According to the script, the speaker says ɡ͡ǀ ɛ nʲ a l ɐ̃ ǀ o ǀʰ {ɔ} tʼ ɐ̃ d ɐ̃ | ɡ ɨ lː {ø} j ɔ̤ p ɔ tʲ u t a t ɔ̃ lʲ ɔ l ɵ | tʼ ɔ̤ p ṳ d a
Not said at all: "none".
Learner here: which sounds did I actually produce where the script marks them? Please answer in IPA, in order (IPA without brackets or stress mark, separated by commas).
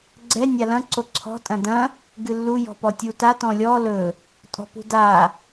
ɔ̤, u